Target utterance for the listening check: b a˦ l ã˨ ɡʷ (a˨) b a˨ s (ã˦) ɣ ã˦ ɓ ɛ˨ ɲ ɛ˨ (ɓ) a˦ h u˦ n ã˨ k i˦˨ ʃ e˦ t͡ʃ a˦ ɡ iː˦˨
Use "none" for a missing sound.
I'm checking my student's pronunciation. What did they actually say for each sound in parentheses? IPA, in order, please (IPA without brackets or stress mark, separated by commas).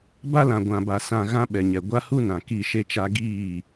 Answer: ã˨, ã˨, ɡʷ